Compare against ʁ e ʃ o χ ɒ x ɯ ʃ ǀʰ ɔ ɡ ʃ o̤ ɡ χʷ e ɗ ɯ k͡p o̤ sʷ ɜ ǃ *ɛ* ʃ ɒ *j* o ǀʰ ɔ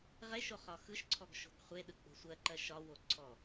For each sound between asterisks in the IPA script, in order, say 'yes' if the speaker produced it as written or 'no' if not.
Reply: no, no

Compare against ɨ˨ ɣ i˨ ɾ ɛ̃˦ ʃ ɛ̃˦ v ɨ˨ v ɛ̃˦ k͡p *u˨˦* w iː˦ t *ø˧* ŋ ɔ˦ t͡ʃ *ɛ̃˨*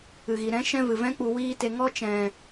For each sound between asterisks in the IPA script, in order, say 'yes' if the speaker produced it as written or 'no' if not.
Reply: no, no, yes

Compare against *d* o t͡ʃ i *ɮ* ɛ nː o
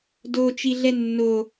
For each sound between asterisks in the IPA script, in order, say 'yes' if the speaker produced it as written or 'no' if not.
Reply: yes, yes

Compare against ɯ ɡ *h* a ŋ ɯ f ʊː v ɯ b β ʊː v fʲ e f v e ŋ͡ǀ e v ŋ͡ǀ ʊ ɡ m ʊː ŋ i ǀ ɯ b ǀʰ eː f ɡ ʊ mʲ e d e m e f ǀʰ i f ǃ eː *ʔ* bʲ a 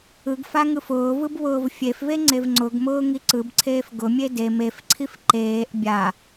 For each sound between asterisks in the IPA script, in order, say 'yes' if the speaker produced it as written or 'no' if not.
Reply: no, yes

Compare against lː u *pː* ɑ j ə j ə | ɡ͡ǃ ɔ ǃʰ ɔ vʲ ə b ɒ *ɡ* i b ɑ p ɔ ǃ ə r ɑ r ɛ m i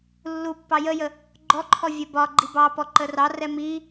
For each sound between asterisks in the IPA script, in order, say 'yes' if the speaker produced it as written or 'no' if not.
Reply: yes, no

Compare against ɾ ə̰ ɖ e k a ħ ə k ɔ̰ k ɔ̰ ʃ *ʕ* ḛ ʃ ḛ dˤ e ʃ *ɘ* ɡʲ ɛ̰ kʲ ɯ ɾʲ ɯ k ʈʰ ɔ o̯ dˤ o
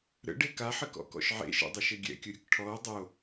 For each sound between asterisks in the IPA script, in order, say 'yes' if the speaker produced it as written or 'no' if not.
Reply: yes, yes

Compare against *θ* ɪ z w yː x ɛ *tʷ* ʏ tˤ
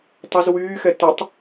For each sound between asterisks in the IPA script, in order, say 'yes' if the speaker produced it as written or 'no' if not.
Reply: no, no

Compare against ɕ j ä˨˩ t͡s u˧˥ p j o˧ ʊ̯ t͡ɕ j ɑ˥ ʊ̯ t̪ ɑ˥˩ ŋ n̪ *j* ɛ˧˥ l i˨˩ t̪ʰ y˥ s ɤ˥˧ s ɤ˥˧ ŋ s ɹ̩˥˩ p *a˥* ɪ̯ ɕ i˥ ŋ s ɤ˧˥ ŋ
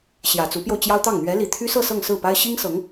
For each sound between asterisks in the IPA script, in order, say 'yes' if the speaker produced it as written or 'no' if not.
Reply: no, yes

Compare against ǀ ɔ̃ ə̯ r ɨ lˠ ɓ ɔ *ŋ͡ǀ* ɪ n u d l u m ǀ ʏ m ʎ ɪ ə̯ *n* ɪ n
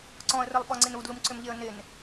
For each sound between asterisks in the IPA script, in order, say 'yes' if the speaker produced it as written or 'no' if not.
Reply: yes, yes

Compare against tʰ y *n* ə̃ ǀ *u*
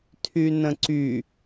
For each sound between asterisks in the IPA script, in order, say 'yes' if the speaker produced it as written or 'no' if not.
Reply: yes, no

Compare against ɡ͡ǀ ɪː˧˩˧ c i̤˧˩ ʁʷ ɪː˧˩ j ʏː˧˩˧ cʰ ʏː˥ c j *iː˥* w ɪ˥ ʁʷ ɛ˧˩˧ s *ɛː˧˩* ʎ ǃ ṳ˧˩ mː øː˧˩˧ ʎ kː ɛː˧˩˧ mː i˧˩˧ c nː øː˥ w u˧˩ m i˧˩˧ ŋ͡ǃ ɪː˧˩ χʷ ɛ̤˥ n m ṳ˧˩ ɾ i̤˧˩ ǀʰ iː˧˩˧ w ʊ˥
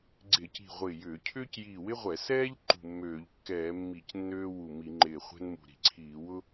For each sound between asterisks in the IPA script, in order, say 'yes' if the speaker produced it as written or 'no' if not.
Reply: no, no

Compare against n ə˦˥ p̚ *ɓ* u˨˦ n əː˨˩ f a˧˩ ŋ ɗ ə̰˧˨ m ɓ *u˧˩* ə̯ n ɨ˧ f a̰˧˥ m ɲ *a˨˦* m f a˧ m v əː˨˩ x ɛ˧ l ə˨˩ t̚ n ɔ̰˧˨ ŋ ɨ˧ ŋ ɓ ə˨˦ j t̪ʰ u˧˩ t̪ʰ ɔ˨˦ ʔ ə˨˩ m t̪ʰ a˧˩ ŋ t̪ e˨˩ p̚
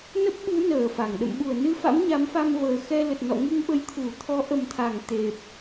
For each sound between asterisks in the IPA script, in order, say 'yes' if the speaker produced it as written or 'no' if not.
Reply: yes, yes, yes

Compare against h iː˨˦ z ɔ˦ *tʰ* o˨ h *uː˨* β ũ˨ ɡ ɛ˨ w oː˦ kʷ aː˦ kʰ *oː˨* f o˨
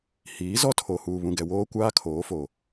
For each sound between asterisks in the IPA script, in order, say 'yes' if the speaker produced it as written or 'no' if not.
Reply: yes, yes, no

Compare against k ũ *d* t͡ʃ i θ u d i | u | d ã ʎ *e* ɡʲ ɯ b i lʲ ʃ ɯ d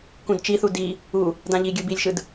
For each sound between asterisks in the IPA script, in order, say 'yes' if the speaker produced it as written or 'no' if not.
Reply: yes, no

